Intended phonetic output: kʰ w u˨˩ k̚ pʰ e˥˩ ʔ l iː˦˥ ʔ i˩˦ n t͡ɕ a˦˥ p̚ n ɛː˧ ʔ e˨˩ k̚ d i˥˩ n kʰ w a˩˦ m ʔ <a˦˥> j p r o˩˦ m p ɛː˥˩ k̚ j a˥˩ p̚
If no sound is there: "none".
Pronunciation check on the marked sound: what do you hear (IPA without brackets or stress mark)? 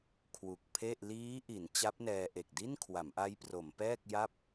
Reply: a˦˥